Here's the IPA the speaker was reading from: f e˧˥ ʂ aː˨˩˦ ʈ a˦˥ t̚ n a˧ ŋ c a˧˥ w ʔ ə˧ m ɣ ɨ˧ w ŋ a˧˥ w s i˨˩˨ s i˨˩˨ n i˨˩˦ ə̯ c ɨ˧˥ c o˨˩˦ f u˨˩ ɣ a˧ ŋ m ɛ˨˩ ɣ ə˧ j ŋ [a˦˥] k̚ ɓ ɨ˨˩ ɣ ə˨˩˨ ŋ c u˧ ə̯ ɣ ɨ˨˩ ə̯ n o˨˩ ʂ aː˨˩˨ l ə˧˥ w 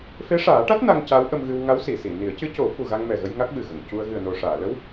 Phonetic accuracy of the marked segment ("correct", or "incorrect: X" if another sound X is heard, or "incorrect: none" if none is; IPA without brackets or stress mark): correct